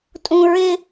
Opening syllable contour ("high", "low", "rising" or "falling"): high